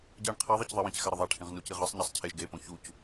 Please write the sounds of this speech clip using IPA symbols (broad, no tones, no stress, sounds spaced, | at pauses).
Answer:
ɟ ɛ ɳ qʰ ɛ ðˤ ʌ c ðˤ i w ĩ c x a ɾ ɯ ðˤ a ʈʰ ĩ ʁ n u c i ʁ ɯ sˤ ɲ a sˤ cʰ e ʒ ɡ e p õ ç u c